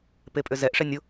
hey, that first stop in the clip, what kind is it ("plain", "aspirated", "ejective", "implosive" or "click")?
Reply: plain